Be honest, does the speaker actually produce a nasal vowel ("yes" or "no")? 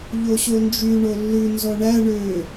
no